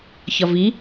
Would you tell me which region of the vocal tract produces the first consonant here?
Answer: palate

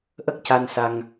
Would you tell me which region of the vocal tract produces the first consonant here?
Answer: throat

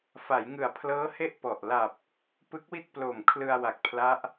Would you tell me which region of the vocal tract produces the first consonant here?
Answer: lips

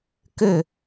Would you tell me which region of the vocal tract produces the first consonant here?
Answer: velum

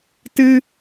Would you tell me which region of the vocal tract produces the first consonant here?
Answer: tongue tip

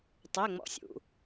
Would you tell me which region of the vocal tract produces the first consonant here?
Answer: tongue tip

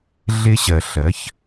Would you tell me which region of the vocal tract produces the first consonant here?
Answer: tongue tip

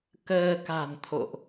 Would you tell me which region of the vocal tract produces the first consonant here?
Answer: velum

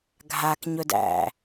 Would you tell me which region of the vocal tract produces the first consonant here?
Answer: velum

